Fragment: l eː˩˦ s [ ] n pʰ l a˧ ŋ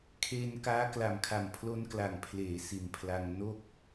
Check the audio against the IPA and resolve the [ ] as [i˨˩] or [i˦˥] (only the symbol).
i˨˩